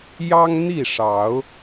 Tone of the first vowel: high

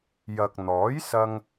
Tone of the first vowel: low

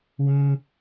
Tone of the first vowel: high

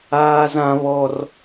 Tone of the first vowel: high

